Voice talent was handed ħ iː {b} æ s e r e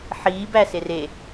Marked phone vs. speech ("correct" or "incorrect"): correct